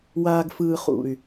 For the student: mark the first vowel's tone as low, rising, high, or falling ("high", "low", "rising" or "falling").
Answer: low